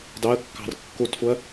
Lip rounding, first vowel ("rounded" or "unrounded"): unrounded